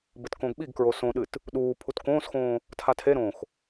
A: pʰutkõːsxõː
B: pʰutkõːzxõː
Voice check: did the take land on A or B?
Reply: A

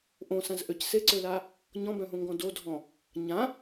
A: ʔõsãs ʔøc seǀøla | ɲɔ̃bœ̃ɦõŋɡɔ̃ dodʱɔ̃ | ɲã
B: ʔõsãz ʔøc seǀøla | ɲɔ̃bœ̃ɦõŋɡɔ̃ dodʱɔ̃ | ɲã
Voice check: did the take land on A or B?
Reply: B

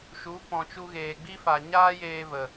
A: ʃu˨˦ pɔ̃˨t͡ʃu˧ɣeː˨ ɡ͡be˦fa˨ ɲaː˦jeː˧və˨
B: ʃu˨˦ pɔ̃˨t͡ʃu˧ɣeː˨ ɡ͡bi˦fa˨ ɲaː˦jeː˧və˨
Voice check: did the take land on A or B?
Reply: B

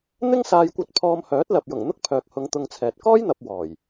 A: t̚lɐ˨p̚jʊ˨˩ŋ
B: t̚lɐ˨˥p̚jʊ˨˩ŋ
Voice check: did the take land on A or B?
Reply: A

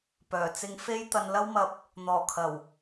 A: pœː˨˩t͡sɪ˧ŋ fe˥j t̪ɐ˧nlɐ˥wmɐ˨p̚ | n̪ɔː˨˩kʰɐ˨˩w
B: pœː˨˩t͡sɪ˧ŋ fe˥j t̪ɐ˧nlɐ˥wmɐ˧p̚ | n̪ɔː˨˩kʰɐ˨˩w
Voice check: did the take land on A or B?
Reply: B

